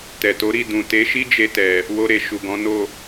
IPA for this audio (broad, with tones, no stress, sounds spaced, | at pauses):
t ɛ˨ t o˨˦ ɾ i˦˨ d ũ˨ t e˨˦ ʃ i˦ d͡ʒ e˧ t ɛ˨ | w o˧ ɾ e˨ ʃ u˨ ɡ ɔ̃˨˦ n o˦˨